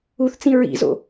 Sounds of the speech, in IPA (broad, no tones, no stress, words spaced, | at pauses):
uθt͡sĩ ɹḭzo̰